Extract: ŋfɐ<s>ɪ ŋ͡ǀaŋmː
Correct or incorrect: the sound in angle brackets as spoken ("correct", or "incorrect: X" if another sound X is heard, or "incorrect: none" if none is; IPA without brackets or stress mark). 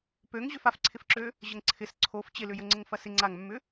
correct